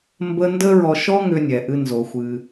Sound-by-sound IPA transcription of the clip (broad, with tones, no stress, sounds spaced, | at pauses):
m b ə˥ n d ə˥ ɹ ɔ˧ ʃ ɔ˥ ŋ ʏ˧ nʲ ɛ˩ ʔ ɨ˧ n z o˩ xʷ ɨ˩